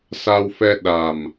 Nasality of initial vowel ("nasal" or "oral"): oral